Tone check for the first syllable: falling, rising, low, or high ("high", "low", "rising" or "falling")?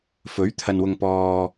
rising